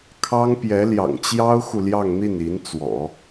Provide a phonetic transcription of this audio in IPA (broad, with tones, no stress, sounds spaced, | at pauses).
kʰ ɑ˥ ŋ p j ɛ˧˥ l j ɑ̰˨˩ ŋ t͡ɕ j ɑ˥ ʊ̯ x u˨ l j ɑ˥˧ ŋ n̪ i˥˩ n i˧˥ n t͡s w ɔ̰˨˩˦